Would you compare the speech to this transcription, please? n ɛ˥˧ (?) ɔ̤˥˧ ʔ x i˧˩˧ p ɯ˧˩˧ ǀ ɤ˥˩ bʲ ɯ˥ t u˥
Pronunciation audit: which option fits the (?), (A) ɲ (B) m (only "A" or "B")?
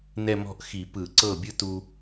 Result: B